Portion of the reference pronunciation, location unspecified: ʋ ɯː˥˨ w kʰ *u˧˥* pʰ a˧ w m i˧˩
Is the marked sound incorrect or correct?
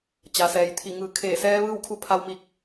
correct